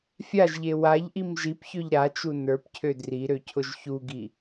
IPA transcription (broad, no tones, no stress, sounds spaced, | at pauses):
fʲ a ʒ ʎ e w a ʎ ʔ i m ʒ i p ç ø ʎ ɾ a t͡ʃ u n ə˞ p cʰ ø d r i ɾ ø cʰ ʊ ʒ ç u ɡ i